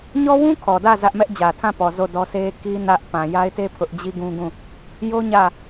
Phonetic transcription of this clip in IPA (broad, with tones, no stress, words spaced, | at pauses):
ɲɔ˦wũ˦ kʰɔ˨dä˦˨ zä˦ʔ mɛ˦ʔd͡ʑä˨tʰã˦˨pɔ˨ zo˦˨dɔ˦sʰe˦ ki˦ nä˦ʔ pã˨ja˦ɪ̯te˦ pʰʊ˦ʔ d͡ʑi˦ɡũ˦ɡũ˦˨ | jo˦ ɲä˦˨